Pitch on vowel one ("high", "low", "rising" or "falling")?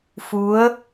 rising